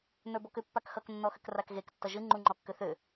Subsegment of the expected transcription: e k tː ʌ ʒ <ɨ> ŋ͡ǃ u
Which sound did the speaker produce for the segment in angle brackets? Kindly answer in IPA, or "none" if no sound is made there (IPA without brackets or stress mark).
ɨ